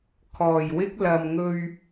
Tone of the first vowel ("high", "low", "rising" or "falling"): low